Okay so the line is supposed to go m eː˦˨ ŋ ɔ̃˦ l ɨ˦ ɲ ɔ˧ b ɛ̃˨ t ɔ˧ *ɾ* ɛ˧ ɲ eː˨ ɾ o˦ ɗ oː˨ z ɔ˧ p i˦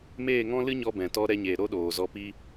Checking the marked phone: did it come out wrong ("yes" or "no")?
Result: no